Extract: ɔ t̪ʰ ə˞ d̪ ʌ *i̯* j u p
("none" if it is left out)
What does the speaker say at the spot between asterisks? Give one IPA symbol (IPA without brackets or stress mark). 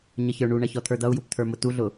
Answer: u̯